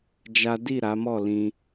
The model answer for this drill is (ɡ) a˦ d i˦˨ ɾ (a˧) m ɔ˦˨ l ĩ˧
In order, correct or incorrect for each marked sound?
incorrect: d͡ʒ, incorrect: a˨˦

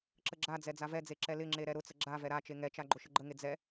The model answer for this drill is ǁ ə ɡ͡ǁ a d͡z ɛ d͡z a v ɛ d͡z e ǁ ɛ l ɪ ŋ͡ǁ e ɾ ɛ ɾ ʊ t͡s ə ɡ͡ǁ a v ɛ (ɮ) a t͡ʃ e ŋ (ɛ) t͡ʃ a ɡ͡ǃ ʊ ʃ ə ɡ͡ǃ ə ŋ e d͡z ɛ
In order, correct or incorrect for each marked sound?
incorrect: ɾ, correct

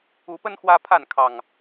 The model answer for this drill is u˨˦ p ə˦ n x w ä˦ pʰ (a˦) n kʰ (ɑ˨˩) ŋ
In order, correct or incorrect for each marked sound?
incorrect: a˥˨, correct

